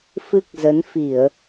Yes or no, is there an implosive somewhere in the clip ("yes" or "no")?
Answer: no